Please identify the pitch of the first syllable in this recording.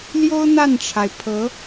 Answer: high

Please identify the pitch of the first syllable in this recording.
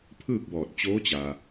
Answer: falling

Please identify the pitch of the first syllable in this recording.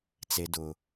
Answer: low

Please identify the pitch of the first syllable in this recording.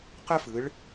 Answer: high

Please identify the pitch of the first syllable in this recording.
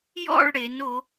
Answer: falling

